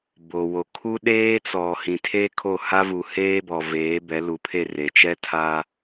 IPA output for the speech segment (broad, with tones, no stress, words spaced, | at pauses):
bo˨wo˨ kʰu˦ɗeː˦ t͡sɔ˨ hĩ˨tʰeː˦kʰo˦˨ ha˦vu˨ heː˦bɔ˨veː˨˦ bɛ˨˦lu˨˦pʰe˦˨ re˨t͡ʃɛ˦tʰa˦